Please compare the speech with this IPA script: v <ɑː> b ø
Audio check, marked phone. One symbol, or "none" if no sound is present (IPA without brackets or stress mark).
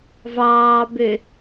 ɑː